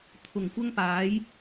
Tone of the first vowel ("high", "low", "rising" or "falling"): low